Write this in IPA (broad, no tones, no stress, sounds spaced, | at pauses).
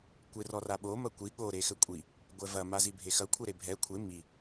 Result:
kʷ e r ɔ r a ɓ o m ɐ kʷ i ɠ o ɾ e x ɘ kʷʼ i | ɡʷ ɛ v ɐ m a z i bʱ e x ɐ kʷʰ ɛ ɾ e bʱ ɛ kʷʰ e m i